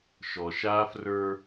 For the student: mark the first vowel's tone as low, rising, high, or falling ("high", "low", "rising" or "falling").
low